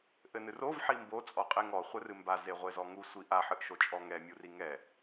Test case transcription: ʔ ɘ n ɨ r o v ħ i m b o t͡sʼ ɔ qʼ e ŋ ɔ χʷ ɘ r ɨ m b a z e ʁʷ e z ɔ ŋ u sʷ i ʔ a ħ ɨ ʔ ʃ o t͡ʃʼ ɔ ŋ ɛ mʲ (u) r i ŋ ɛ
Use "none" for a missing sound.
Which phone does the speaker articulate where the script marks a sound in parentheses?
u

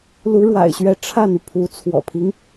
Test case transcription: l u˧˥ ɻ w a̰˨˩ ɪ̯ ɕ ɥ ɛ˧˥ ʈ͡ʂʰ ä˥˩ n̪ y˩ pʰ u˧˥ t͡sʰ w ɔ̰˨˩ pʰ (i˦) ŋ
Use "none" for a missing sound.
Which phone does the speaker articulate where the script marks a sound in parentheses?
i˦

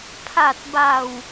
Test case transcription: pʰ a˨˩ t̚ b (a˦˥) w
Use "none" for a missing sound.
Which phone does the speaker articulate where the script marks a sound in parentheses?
a˨˩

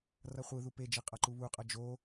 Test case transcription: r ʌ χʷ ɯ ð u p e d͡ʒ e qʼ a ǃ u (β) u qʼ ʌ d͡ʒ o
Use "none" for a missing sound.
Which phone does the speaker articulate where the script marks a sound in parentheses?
β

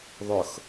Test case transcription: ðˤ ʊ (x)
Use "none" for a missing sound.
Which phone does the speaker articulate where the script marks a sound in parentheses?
x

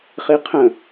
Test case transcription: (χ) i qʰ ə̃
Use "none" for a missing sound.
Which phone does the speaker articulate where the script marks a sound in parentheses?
χ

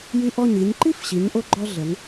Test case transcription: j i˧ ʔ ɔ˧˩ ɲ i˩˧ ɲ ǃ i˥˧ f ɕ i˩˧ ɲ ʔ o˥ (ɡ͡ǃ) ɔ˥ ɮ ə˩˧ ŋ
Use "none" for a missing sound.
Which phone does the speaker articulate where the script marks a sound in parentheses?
ɡ͡ǃ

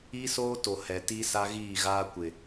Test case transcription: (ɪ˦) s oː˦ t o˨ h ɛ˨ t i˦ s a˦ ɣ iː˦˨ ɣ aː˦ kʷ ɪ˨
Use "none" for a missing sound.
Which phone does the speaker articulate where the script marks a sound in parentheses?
i˦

